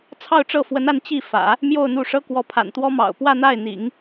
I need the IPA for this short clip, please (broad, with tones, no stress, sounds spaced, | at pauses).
t͡sʰ ɑ˥˧ ʊ̯ ʈ͡ʂ ɤ˥˩ f w ə˧˥ n a˥˧ n t͡ɕ i˥˩ f ä̰˨˩˦ | m j o˥˧ ʊ̯ n̪ u˥˩ ʂ ɤ˥ k w ɔ˧˥ pʰ a̰˨˩ n t̪ w ɔ˥ m ɑ̰˨˩ ʊ̯ p w ä˥˧ n̪ a˥˩ ɪ̯ n̪ ḭ˨˩˦ ŋ